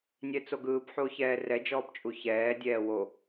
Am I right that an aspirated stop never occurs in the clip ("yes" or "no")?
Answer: yes